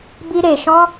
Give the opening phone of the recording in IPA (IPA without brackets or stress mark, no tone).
b